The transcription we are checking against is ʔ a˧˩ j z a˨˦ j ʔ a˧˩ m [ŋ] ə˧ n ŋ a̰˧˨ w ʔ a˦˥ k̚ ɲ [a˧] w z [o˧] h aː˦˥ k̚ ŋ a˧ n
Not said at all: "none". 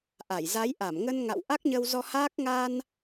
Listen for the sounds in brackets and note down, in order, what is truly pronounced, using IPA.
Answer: ŋ, ə˧, ɔ˧

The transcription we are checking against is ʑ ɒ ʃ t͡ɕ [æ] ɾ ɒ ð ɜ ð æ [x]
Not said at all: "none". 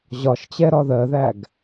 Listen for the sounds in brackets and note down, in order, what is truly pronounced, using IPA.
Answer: ɛ, ɡ

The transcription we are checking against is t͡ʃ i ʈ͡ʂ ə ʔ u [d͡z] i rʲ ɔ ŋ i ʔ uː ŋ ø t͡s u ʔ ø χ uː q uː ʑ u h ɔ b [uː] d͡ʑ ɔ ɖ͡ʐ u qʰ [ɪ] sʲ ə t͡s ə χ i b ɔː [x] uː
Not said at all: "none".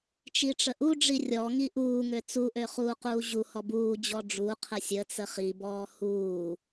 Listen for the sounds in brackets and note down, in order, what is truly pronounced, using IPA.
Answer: ɖ͡ʐ, uː, ə, h

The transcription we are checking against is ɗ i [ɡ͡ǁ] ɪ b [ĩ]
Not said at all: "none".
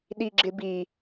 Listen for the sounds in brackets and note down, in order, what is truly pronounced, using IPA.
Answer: ɡ͡ǁ, i

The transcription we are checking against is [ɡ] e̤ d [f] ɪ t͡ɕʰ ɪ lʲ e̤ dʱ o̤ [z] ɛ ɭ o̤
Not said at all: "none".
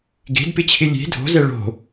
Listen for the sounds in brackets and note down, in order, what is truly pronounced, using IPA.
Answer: ɡ, p, z

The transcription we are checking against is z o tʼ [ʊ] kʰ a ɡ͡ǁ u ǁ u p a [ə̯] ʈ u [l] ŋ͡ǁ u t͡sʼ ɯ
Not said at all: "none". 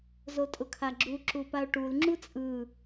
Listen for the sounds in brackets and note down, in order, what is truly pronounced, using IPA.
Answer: ʊ, ʊ̯, l

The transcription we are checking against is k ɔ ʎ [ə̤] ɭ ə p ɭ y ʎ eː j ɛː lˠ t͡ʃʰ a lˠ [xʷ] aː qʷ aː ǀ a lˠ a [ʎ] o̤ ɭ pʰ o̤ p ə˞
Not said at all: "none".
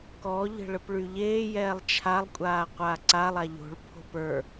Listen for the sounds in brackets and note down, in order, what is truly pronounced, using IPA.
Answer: ə̤, kʷʼ, ʎ

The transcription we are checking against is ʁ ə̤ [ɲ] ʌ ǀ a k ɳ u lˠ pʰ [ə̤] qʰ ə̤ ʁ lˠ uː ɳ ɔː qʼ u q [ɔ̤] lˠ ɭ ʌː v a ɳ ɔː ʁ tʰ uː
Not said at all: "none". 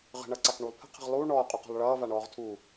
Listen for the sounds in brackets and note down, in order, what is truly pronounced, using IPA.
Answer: ɳ, ə̤, ɔ̤

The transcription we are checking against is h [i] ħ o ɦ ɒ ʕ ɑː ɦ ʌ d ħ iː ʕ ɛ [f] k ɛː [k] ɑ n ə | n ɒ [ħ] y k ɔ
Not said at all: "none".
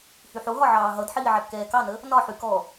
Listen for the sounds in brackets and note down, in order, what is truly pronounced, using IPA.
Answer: y, p, k, ħ

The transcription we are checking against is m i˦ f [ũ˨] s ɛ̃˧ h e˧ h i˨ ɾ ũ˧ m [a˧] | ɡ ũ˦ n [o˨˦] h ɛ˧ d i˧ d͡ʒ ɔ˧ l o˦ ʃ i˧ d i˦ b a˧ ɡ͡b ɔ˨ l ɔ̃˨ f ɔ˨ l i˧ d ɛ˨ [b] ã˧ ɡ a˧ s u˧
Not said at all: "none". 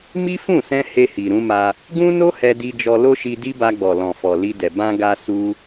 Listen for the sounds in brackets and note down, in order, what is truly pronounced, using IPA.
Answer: ũ˦˨, a˧, o˦, b

